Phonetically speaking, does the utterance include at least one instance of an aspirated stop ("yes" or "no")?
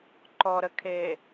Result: yes